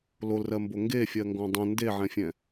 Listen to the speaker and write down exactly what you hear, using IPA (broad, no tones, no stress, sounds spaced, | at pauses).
l o l r ɜ m b o ŋ ɡ e fʲ ɜ ŋ ɡ ɔ̃ dˤ ə̃ n d e ʕ ɛ̃ fʲ ɛ̃